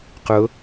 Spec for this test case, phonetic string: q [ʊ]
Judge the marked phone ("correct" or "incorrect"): correct